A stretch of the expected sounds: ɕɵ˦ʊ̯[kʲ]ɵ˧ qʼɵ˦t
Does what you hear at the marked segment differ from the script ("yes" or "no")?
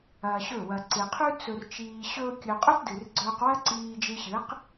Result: no